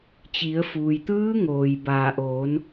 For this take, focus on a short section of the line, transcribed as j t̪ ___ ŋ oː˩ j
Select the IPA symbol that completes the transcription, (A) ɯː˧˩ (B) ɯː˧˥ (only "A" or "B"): B